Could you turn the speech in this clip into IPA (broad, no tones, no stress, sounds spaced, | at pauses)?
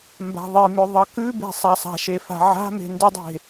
m b a̤ ðˤ i m ʏ ðˤ ʌ k ʉ b e̤ sˤ a sˤ a̤ ʃ e f a̤ ʕ a̤ m e̤ n d ʏ dˤ e̤